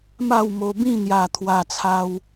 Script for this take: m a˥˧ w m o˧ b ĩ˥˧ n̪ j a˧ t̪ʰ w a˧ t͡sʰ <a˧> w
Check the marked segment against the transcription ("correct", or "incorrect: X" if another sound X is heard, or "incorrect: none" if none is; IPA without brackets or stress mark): correct